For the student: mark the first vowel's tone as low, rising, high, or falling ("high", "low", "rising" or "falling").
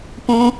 high